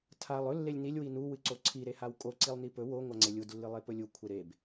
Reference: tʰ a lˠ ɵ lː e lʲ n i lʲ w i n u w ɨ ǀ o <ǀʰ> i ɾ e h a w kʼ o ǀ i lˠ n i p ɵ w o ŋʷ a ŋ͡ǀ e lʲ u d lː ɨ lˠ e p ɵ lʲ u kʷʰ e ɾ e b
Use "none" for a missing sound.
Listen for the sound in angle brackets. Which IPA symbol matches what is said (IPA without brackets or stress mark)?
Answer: ǀʰ